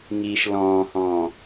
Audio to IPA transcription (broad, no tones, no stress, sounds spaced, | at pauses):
ŋ iː ʃ l ɔ̃ː h ɔ̃ː